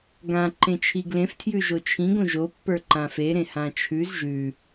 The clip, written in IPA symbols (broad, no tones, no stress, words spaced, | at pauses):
ɡã ǃẽt͡ʃʰiɡlẽf tʰjʉʒot͡ʃʰĩɡ õʒo pːə˞ǃãfe ɾẽhãt͡ʃʰʉz ʒʉ